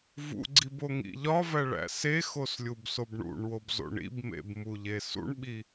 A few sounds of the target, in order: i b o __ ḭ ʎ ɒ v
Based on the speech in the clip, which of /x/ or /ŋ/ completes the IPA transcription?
ŋ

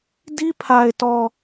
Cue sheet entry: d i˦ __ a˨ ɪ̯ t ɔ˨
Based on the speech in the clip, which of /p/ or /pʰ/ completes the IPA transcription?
pʰ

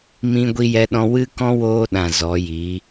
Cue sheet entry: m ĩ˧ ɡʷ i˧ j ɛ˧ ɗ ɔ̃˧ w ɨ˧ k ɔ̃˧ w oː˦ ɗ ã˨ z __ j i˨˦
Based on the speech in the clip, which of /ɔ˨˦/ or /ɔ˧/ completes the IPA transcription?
ɔ˨˦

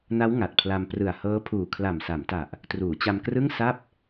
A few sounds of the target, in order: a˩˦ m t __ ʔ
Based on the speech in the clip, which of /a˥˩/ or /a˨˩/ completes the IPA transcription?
a˨˩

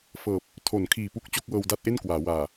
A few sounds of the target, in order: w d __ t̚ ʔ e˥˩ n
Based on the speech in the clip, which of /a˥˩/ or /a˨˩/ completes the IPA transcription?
a˥˩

